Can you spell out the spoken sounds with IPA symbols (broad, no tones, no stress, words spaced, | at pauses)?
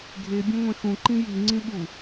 ɡʱe bʲẽŋʷẽxũ ǃĩji ŋ͡ǀĩɓu